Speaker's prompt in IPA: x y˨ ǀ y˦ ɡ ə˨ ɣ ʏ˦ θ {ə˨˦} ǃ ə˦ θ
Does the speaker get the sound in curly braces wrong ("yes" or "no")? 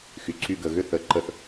no